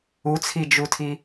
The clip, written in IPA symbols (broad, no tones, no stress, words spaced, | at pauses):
ut͡sʰid͡ʒutʰi